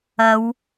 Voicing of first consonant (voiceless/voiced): voiced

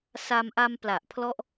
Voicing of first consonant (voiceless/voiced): voiceless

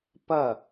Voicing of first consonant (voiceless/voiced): voiceless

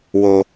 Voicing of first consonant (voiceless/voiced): voiced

